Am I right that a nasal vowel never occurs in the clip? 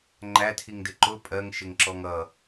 yes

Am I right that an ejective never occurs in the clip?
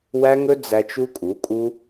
no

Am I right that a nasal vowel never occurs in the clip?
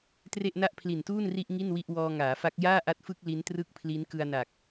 yes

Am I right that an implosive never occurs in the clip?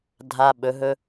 no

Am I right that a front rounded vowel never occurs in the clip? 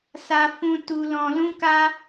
yes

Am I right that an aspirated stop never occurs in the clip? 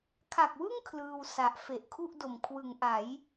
no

